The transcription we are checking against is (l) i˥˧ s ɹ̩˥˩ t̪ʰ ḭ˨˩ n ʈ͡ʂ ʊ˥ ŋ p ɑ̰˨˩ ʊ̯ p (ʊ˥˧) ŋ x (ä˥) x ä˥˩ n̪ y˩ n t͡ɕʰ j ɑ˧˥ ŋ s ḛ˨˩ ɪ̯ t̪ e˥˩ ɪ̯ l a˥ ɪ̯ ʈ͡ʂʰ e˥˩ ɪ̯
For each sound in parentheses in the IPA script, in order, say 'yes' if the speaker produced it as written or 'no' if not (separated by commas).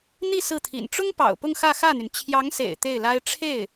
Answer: no, yes, no